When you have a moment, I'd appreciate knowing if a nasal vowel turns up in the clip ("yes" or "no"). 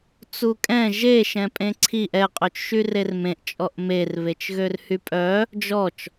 yes